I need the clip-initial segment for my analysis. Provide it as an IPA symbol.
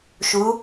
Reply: ʃ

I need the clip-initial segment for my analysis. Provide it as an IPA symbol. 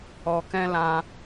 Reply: ɔ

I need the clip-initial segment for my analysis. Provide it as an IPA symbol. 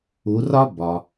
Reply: u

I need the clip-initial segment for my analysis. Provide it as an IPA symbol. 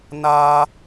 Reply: n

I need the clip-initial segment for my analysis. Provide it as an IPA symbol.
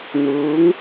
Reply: n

